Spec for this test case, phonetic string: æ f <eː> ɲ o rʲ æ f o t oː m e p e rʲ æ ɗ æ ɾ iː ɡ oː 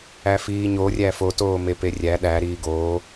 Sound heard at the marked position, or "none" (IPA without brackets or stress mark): iː